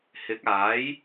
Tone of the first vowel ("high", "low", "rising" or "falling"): rising